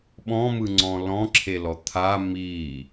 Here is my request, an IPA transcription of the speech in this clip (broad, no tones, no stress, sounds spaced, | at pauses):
ɓ ɔ̃ m ɯ ŋ͡ǀ ɔ̃ l ɔ̃ ǁʰ e l ɔ t̪ʰ a m i